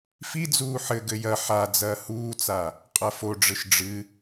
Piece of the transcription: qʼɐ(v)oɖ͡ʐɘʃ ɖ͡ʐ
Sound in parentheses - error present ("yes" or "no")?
yes